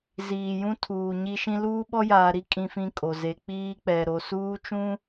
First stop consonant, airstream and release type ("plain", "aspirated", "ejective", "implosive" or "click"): aspirated